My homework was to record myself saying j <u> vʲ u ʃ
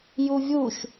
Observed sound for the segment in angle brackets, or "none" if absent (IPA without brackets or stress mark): u